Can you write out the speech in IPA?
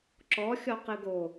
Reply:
ǁɔxʲɔ qɨɡo

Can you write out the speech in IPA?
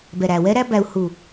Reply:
bɛ˨ɾæ˨wɛ˦ɾæ˦ bæ˧u̯ hu˨

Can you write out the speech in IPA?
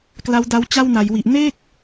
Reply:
kla˦˥wda˦˥w t͡ɕa˥˩wna˩˦jwi˨˩ʔ ne˥˩k̚

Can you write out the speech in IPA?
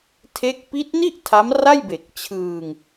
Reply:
tʰe˦˥k̚ pi˦˥t̚ni˥˩ʔ tʰa˦˥mra˥˩j be˨˩k̚t͡ɕʰɯː˧ŋ

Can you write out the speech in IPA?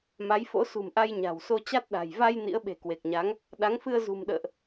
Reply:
ma˨˦jfo̰˧˥sṳ˨˩mʔa˧j ɲa̤˨˩wso˧ t͡ɕa˦˥t̚ɗa̤˨˩j va˧j nḭ˧˥ə̯ɓe̤˨˩kwe˨˩k̚ɲa˨˦ŋ | ɗa˨˦ŋfɨ˧ə̯ zṳ˨˩mɗə̰ː˧˨ʔ

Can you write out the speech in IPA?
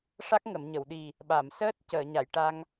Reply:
ʂa˦˥k̚ŋə˨˩˨mɲə˨˩˨wɗi˨˩ | ɓa˨˩˨msəː˦˥t̚ cəː˨˩˨ɲa˨˩˨jʈa˧ŋ

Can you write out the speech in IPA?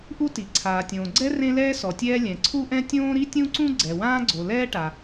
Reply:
ʔu˥ti˩ ǀʰaː˩tʲõː˩ɡ͡ǀɛ˥ rẽ˥lɛː˥ sɔ˩tʲɛː˥ lʲɛ̃˩ǀʰu˥ʔɛ̃˥ tʲõː˥ɾi˥tʲũ˥ǀũ˥ ɡ͡ǀɛ˩wãː˥ɡ͡ǀo˩ lɛː˥ʈa˩

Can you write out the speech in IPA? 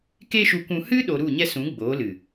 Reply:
ke˦ʃu˧kʷũ˧ hɨ˦ɗo˨ ɾu˦˨ɲɛ˦sũ˨˦ ɡ͡boː˨˦lɨ˨

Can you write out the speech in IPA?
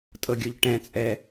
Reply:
tʼɤɡʲoʎʈɛ̃t͡sʼɛ

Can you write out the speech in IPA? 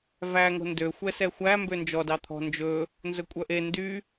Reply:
væŋo̤ ndø xʷɛsɛxʷæmbø nd͡ʒɔdɑt̪ʰɔ̤ nd͡ʒɵ | nzɵkʷʼœʔe ndy

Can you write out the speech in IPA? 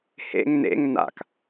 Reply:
hḛŋ nḛŋ na̰k

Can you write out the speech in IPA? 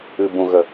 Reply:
ɨ˨bũ˨ɣə˨

